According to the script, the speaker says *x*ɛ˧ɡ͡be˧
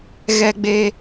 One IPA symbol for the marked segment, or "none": ɣ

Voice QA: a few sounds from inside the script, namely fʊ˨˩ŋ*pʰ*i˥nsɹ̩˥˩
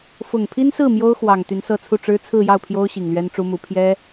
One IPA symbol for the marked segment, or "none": pʰ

